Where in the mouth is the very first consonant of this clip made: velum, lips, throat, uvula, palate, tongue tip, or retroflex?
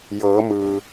palate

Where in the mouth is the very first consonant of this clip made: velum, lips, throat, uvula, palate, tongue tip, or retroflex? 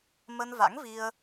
lips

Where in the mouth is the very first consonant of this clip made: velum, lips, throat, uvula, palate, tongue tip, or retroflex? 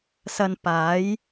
tongue tip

